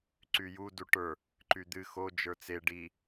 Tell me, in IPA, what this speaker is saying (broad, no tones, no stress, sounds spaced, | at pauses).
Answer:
ǀ y j u d u ʈ ə˞ | ǃ y d̪ ɨ x o d͡ʒ ə˞ t͡s e ɖ i